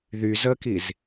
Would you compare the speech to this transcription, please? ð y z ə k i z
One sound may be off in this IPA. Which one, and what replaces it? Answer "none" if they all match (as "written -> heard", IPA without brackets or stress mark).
none